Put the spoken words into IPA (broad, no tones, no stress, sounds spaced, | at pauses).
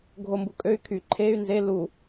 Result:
ɡʱ o m b u kʼ ø y̯ kʰ y ǃʰ e y̯ n z e l u